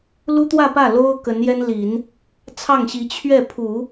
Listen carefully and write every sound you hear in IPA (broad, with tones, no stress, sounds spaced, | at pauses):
l u˥ t̪ w ä˥˧ p ä˥˩ l o˥ ʊ̯ k ə˧˥ n j ɛ˥ n l i˨˩˦ n | t͡sʰ ɑ˥˩ ŋ ɕ i˧˥ t͡ɕʰ ɥ ɛ˥˩ pʰ u˨˩˦